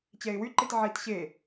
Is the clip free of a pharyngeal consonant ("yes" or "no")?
no